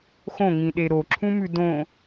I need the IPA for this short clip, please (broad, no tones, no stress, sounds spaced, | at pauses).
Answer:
x õ ŋ ĩ ɗ e ɾ o ǁʰ ũ m ʉ d õ